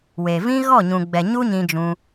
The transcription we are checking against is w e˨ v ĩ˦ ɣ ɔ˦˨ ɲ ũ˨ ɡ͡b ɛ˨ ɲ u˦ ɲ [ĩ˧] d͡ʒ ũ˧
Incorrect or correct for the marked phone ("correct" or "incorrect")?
correct